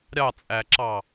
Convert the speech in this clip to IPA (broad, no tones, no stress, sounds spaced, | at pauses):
ɾʲ ɑ t͡sʼ æ ǁ ɑ